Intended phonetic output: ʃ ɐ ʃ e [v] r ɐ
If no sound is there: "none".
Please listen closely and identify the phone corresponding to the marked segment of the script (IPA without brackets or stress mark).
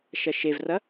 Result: v